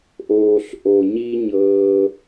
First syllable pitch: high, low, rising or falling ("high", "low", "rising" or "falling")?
low